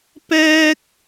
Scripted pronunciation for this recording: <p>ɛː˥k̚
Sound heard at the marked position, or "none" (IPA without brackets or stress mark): p